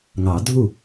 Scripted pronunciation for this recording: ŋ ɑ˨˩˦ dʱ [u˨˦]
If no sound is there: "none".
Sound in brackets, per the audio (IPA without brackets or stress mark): u˥˩